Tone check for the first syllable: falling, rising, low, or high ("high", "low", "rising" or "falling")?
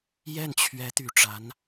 falling